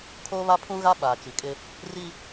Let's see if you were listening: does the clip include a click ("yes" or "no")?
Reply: no